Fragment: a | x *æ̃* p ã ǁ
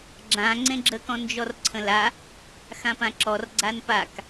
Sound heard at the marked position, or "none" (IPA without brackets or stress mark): ã